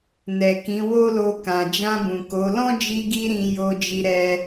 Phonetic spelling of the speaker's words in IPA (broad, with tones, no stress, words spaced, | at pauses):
nɛ˨kĩ˨˦ wo˦lo˧ kã˨d͡ʒã˧bũ˨ ko˨˦ lɔ̃˦d͡ʒi˧ɡi˧ ɾĩ˧ jo˧d͡ʒi˧ɾɛ˧